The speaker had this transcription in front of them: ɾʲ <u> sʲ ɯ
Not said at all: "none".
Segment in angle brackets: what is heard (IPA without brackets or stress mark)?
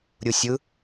u